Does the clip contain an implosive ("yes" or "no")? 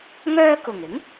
no